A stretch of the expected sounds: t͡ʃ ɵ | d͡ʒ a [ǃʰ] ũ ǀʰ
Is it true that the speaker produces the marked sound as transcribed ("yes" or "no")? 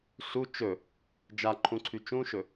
yes